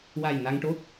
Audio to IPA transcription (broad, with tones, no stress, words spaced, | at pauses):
wa˨˩j na˧ŋʈo˦˥t̚